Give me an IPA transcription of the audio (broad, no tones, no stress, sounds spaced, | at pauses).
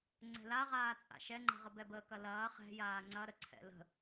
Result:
ŋ͡ǀ ɛ̤ l a ʁ aː t͡sʼ a̰ ʃ ɛ ŋ͡ǃ ɛ̤ ʁ ə b ɛ b əː k ɐ l ɐː χ ɛ̤ j aː ŋ͡ǀ ɐ ɾ ə ǀʰ ɛ̰ l ə̤